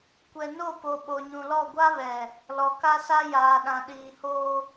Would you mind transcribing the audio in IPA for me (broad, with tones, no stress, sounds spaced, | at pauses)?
kʷ ɛ˨ n o˦˨ p o˨ ɓ o˨ ɲ ũ˨ l ɔ˦˨ ɡʷ a˦ β ɛ˨ | l ɔ˨ k a˦ s a˦ j aː˨ ɗ ã˨ ɗ iː˨ h oː˦